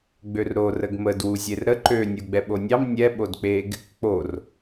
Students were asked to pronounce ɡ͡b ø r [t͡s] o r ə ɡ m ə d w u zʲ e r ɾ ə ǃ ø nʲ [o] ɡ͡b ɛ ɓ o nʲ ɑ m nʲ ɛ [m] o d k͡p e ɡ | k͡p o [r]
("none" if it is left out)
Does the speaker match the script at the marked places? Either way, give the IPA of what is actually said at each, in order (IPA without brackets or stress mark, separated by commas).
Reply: ɾ, u, ɓ, r